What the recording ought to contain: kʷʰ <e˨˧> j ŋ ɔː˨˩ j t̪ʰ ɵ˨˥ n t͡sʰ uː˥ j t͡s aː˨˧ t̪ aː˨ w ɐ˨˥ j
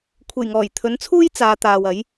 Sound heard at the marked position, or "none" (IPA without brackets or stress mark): e˨˩